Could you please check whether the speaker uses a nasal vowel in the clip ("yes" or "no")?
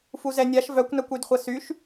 no